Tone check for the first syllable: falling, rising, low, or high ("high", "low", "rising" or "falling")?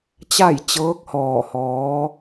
falling